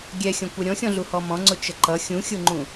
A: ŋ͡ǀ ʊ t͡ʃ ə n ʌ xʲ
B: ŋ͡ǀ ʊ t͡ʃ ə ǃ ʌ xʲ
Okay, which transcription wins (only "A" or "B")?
B